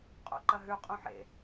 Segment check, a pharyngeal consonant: present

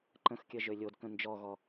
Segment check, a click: present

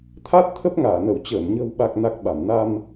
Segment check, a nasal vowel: absent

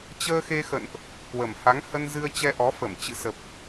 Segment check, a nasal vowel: absent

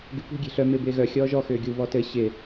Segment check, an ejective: absent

